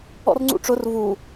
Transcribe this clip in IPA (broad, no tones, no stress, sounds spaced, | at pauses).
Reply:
ɔ̰ r ŋ͡ǀ ṵ ʈ͡ʂ ʊ r v u